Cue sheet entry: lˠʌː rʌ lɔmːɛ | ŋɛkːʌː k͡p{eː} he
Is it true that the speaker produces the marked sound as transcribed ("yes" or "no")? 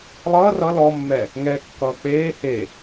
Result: yes